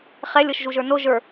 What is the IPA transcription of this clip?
χ ɛ lʲ ɤ ʃ ʒ u ʒ ə˞ n o ʒ ə˞

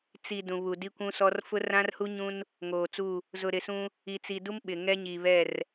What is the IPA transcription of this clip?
t͡s i˨ d ũ˨ β u˨ d i˦ kʷ ũ˦ s ɔ˦ r f ʊ˦ r ã˦ r h u˦ ɲ ũ˦ n | ŋ oː˨ t͡s u˦˨ | z ʊ˨ ɾ ɪ˨ s ũ˦ | i˨ t͡s i˨ d u˦ m ɓ ɪ˨ ŋ ɛ˦ ɲ i˨ β ɛ˦˨ r

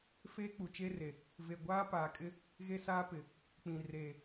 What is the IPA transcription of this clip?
f eː˦ k͡p u˨ t͡ʃ e˦ r e˨ | v e˨ ɡʷ aː˦ p aː˨ kʼ ɪ˦ | ɣ e˦ s aː˦ p ɪ˨ | k͡p ĩ˨ r eː˨

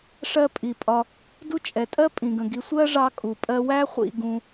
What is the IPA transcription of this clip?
ʂ ɜ˦ pʼ i˩ pʼ ɒ˨ | d u˦ t͡ʃʼ ɛ˩ tʼ ɜ˥ pʼ ĩ˩ ɡ ə̃˩ ɡ i˨ sʷ ɜ˥ ʐ ɑ˦ kʼ u˩ pʼ ɜ˦ w æ˥ χʷ ḭ˨ ɡ ũ˨

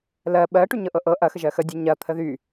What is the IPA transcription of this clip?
l ɜ ɓ ɜ ʈ y ɲ ɤ ʔ ɤ ʔ ɤ ʔ ɐ x ə ʒ ɜ x ə dʲ ɛ ɲ ɐ t̪ʰ ə ð y

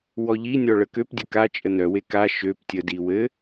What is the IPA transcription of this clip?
w ɔ ʎ i nʲ ɔ ɭ ə k ø p dʲ ə k a t͡ʃʼ ə n œ w e k a ʃ ø p tʲ ə d i w ɘ

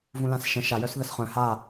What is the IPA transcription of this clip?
v ũ l ã s ʃ ə̃ ʃ a j œ s ð ə s χ œ̃ h a

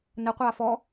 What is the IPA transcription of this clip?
n ə qʷ aː f ɔ

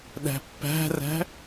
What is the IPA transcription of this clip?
ɗ æ̤ pː æ̤ r æ̤

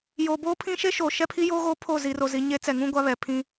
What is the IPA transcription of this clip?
j oː˨ b oː˦ pʰ ĩ˦ ʃ e˦ ʃ oː˨ ʃ ɛ˦ pʰ i˦ j oː˦ ɣ oː˦ pʰ o˦˨ z i˨ r o˨ z i˨ ɲ e˦ t͡s ɛ˨ ŋ ũ˦ ɡʷ a˦ β ɛ˨ pʰ ĩ˦

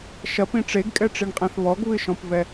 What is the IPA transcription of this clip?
ʃ ɐ p ĩ ʈ͡ʂ e ɡ kʼ ɛ ʈ͡ʂ i ɳ qʼ ɛ̃ θ β ɔ ɡ β ɨ ʃ ɔ̃ p v ɛ

